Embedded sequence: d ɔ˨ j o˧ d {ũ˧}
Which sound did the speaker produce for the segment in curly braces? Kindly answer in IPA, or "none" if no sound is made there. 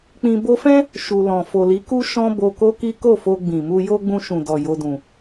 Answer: ũ˨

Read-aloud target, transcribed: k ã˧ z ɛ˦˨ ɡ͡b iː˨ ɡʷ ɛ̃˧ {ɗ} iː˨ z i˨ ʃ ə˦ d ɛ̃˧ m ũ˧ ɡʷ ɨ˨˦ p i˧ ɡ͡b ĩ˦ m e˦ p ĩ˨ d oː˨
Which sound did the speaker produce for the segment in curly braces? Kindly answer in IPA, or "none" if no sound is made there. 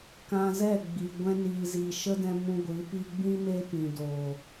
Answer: n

